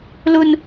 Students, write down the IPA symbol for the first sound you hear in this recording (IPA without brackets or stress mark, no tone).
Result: l